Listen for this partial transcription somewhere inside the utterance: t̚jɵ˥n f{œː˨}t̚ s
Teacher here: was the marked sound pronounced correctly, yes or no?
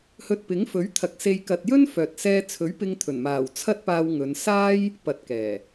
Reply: yes